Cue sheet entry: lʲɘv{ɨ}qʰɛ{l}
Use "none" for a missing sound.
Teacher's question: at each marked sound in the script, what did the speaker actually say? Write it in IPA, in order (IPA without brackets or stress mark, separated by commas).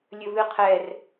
ɨ, r